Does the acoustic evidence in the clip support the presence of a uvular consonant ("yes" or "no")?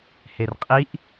yes